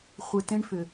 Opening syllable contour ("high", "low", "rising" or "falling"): low